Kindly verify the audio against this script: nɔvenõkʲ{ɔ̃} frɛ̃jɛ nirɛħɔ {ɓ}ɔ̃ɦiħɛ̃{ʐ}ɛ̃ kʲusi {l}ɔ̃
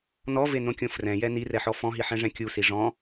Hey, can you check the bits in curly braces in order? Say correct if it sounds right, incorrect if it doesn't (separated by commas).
incorrect, incorrect, correct, incorrect